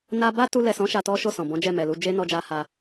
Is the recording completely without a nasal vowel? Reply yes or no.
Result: no